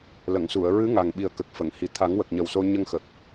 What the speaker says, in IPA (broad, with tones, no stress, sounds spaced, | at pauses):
l ə˨˩˨ ŋ s u˨˩˨ ə̯ ɹ ɨ˧˥ ŋ a˨˩ ŋ ɓ i˨˩ ə̯ k ə˨˩ k̚ f ə˨˩˨ ŋ h i˨˩ t̪ʰ a˨˩˦ ŋ w ə˨˩ k̚ ɲ ə˨˩ w s o˧ ɲ ə˧ ŋ x ə˨˩ k̚